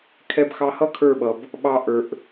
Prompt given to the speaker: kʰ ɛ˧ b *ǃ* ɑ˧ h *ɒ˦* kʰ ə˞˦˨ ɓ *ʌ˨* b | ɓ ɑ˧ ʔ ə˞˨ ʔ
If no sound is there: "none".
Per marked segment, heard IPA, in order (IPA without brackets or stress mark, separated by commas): x, ʌ˦, ʌ˨